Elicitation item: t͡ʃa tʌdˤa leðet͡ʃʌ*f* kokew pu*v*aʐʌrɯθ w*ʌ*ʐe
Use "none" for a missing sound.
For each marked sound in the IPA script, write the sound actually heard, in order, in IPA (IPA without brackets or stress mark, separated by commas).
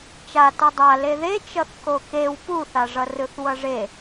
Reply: θ, θ, ʌ